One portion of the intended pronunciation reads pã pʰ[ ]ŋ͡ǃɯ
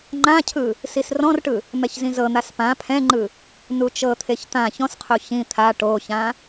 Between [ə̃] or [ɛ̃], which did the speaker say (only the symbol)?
ɛ̃